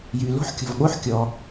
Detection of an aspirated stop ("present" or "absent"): absent